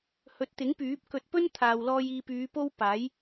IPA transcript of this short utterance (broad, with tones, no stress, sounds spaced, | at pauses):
h ɵ˨˥ t̚ t̪ ɪ˨˥ ŋ p yː˨˥ p̚ k ɵ˧ t̚ p ɵ˥ n t̪ʰ aː˨ w l ɔː˧ j iː˧ p yː˨˧ p o˥ w p aː˨˥ j